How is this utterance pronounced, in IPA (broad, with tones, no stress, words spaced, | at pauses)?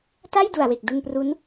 ta˥˩jdu˨˩a̯we˨˩k̚ du˧npru˦˥n